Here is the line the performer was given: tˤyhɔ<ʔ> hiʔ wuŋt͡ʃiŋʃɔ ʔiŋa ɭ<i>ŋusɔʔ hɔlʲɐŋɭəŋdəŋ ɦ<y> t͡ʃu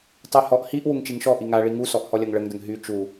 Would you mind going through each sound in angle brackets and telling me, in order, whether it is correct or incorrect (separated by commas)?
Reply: correct, correct, correct